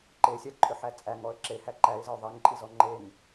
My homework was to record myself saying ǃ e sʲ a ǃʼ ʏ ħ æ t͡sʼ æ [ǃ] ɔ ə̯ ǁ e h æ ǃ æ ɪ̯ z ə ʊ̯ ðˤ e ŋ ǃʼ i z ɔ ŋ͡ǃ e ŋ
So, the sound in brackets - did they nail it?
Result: no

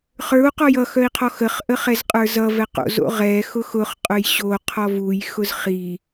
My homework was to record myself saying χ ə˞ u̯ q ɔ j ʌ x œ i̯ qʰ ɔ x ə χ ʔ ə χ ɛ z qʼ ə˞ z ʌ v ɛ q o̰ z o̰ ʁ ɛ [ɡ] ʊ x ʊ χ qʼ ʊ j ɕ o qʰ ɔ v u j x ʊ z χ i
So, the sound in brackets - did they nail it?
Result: no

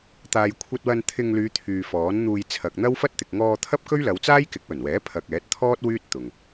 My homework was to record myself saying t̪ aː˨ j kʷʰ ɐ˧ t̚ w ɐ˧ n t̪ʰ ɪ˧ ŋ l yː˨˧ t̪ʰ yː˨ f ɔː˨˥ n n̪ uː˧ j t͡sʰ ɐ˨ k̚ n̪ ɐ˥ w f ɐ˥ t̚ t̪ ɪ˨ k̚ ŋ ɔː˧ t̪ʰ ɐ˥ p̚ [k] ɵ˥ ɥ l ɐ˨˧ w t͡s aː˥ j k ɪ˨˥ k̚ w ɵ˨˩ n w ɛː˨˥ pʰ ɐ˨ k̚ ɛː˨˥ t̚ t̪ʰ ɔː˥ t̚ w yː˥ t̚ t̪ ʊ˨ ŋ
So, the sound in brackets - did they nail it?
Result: yes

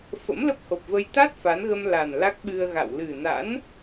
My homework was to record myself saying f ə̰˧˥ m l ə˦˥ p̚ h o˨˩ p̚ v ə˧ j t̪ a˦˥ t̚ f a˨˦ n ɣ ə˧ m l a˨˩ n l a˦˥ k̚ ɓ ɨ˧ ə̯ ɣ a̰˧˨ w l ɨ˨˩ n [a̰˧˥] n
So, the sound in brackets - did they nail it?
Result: yes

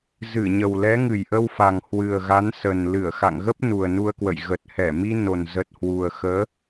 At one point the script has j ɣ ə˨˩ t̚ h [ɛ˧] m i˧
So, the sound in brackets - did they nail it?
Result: no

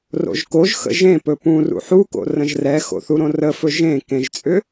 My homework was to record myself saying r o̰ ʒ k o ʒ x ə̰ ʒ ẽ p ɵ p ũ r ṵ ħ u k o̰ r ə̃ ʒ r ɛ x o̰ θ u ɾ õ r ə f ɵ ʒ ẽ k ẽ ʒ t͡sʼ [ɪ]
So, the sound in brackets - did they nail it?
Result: no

